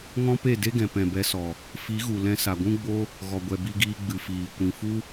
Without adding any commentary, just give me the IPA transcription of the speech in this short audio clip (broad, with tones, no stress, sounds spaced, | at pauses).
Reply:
ŋ ɔ̃˦ p e˦˨ d e˦ ɡ ɛ̃˨ p ɛ̃˨ b ɛ˧ s ɔ˨ | f i˨˦ ɣ u˨ l ɛ̃˧ s a˨ ɡʷ ũ˦ ɡ͡b o˦ | ɣ ɔ˨ ɡʷ ɛ˨ b i˧ ɡ iː˧ ɡ͡b ɨ˨ f iː˨ kʷ ĩ˨ f u˦